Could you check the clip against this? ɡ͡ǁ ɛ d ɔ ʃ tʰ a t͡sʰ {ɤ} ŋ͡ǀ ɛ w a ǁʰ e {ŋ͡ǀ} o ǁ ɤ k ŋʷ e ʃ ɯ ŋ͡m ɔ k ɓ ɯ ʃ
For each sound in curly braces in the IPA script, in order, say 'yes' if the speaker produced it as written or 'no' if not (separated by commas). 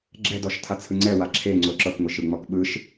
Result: no, yes